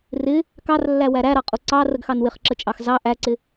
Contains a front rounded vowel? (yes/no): no